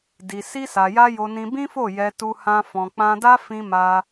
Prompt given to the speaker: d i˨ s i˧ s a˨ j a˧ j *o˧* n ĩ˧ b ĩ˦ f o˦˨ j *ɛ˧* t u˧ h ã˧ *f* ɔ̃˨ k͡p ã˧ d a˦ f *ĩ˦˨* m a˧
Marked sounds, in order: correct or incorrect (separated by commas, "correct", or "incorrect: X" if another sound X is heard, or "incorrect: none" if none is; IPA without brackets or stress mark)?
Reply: correct, correct, correct, incorrect: ĩ˧